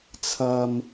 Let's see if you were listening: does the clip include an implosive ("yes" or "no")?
no